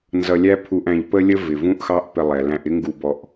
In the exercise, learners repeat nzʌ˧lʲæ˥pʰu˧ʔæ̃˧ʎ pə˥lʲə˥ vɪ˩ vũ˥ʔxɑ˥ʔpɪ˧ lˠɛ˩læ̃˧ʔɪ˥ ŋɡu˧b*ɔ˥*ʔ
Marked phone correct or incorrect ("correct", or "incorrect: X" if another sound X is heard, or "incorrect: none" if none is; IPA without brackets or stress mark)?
incorrect: ɔ˧